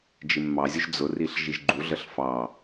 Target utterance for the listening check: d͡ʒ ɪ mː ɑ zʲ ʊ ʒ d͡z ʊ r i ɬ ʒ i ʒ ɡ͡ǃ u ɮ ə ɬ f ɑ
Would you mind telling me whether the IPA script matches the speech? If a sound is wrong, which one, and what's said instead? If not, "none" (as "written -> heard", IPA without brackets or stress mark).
none